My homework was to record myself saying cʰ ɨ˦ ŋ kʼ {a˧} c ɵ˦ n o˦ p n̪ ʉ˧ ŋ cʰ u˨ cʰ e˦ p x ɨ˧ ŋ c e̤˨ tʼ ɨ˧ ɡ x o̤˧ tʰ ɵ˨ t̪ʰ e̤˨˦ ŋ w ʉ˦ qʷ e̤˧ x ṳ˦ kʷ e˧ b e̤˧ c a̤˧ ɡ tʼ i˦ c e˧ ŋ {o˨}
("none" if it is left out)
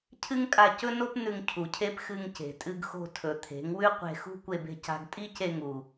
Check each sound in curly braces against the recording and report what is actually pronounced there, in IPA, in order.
a˧, u˨

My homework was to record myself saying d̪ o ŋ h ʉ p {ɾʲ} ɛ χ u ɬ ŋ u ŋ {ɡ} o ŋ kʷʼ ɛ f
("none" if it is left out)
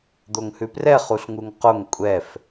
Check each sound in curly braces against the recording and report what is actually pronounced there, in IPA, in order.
r, q

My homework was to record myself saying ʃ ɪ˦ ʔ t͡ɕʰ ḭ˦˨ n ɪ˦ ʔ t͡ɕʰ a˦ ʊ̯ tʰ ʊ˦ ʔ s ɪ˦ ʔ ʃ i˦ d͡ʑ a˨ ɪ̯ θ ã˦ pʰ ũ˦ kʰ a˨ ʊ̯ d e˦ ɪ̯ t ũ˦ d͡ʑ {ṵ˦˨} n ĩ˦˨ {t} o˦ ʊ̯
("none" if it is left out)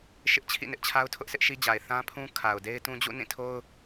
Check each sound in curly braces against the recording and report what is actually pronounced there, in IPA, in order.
ṵ˦˨, tʰ

